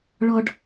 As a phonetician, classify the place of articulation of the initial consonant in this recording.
retroflex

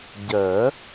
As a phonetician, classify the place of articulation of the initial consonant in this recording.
palatal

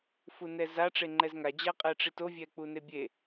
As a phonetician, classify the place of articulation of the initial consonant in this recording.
labial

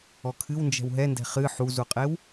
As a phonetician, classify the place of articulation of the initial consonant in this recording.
velar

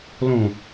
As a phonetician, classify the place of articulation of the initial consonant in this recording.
alveolar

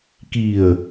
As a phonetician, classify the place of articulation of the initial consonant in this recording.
velar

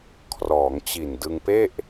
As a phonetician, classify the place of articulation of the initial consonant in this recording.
velar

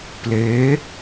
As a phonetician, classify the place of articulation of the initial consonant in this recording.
labial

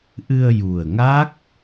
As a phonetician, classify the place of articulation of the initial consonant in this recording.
glottal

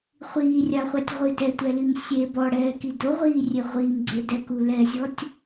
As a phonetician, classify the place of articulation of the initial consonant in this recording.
uvular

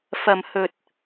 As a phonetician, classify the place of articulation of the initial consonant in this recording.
labial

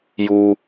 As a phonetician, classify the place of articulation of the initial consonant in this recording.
palatal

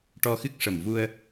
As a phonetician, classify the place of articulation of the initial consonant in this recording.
retroflex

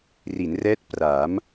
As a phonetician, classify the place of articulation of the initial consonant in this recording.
alveolar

